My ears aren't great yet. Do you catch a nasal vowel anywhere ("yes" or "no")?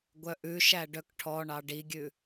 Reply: no